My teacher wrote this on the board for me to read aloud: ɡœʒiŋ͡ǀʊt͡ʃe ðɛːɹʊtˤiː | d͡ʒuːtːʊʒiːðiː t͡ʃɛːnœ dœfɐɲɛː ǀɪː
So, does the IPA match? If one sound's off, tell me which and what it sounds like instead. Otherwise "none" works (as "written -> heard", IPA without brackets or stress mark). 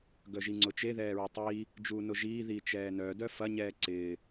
tː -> n